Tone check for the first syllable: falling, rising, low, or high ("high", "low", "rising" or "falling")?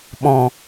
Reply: low